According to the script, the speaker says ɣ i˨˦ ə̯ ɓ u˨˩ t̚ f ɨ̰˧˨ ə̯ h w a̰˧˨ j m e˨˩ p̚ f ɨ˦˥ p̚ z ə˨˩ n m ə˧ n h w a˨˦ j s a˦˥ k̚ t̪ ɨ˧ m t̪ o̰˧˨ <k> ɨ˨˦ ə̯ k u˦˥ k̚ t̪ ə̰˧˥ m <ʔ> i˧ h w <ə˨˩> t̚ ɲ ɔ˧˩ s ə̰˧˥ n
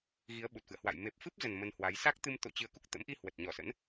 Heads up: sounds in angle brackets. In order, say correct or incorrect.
incorrect: t͡ɕ, correct, correct

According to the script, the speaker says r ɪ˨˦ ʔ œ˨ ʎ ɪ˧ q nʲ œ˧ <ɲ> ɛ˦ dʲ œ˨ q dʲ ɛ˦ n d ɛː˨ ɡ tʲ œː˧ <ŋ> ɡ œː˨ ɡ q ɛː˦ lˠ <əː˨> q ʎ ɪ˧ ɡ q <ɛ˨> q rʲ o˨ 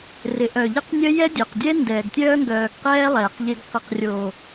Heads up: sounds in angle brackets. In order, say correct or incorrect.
incorrect: j, correct, incorrect: ɛː˨, incorrect: ɪ˨

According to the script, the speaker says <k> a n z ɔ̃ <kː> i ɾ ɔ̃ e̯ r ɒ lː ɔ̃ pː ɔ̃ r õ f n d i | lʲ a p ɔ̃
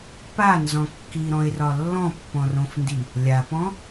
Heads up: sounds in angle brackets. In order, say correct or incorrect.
incorrect: p, correct

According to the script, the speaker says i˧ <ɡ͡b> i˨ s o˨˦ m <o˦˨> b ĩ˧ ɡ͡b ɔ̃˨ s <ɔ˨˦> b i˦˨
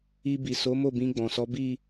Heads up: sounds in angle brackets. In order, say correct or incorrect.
incorrect: b, correct, correct

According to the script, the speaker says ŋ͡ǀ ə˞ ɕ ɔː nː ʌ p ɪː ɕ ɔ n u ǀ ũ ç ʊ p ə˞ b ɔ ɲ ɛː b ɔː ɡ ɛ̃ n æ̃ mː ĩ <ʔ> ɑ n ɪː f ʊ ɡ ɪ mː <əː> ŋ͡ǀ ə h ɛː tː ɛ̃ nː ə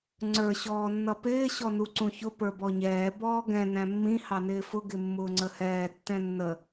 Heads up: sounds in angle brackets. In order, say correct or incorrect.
incorrect: h, incorrect: ʊː

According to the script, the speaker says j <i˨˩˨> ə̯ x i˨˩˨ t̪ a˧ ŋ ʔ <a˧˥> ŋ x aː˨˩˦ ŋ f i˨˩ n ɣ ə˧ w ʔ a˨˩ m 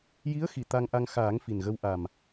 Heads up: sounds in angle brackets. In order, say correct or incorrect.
incorrect: i˧˥, incorrect: a˧

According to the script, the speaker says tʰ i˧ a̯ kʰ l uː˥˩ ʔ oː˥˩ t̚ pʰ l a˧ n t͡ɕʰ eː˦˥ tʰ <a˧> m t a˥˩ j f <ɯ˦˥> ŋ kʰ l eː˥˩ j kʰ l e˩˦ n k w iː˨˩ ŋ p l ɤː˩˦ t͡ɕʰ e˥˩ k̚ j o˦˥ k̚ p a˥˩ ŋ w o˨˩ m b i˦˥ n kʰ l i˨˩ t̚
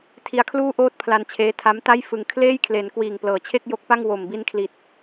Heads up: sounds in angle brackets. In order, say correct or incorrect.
incorrect: a˦˥, incorrect: ɯ˧

